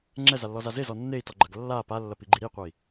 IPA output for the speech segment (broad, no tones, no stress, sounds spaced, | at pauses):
ŋ͡ǁ ɛ z a lː ɔ z a z e z ɔ nː e i̯ t ɔ ɡ͡ǃ ɐ ɡ lː a p a lː ɐ p i ɡ͡ǃ i ɾ i qʷ ɛ i̯